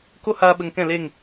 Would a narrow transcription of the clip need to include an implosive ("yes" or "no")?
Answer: yes